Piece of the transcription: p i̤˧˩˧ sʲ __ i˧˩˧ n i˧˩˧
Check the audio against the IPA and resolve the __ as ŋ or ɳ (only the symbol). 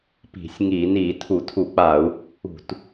ŋ